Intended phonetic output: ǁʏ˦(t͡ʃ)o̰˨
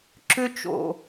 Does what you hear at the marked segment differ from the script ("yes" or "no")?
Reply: no